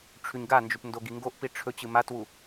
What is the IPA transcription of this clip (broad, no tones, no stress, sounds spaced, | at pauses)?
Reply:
ʈ͡ʂʰ ʉ ɲ ɡ a n d͡ʒ ʉ p n d o ɡ i ŋ ɡ o ʔ p i ʈ͡ʂʰ ɵ t͡ɕ ɨ m a t w u